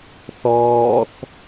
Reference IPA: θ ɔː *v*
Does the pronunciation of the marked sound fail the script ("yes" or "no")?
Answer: yes